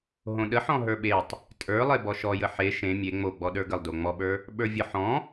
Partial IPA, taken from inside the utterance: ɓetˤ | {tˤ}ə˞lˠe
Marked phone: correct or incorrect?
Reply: incorrect